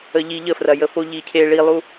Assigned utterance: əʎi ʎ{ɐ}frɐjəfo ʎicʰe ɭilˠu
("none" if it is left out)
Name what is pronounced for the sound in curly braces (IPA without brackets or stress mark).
ə